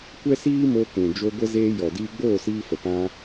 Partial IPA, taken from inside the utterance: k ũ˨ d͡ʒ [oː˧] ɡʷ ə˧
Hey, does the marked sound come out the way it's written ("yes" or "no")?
no